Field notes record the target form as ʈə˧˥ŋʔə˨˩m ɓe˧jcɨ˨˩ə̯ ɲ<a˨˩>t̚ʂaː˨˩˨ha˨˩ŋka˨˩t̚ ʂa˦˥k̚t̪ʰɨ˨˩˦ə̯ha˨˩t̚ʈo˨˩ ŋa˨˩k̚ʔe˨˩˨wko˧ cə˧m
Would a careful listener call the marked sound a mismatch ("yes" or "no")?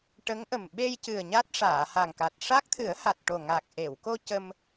yes